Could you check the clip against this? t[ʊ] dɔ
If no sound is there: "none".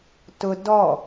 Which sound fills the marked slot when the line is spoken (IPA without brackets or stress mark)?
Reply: ʊ